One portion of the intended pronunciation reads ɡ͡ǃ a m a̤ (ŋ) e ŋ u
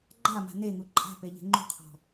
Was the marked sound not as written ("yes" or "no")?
yes